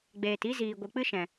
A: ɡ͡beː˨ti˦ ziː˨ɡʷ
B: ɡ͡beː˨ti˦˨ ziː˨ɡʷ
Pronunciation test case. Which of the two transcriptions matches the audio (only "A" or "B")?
A